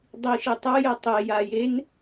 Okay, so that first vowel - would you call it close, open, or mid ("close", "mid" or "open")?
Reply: close